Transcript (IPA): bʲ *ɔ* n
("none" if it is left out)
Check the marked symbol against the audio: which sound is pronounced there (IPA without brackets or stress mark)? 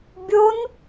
o